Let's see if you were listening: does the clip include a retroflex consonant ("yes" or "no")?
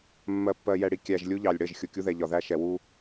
yes